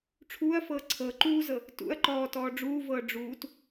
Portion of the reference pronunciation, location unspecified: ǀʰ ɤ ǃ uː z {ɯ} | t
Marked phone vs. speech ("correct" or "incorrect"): incorrect